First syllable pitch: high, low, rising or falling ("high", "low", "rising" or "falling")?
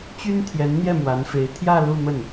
high